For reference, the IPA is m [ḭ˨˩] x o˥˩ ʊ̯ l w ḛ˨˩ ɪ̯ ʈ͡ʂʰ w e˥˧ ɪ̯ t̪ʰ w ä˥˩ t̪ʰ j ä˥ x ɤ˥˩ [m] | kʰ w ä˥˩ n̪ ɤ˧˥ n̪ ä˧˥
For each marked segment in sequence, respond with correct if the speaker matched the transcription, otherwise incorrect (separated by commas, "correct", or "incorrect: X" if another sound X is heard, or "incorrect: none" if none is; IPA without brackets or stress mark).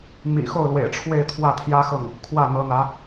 correct, incorrect: ŋ